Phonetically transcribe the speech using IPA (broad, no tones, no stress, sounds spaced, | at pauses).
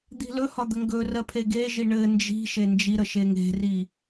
d̪ i̤ l ɵ h ɒ d̪ ə ŋ ɡ ɵ r ɜ pʰ e ɡ e ʒ i ɳ ɘ n d͡ʒ i̤ ʃ e n d͡ʒ i ɾ ə ʃ e ŋ e̤ r i